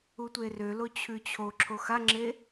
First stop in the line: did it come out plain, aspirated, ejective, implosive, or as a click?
plain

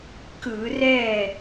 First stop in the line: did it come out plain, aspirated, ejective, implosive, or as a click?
plain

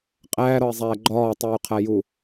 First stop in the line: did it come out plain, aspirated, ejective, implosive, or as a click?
ejective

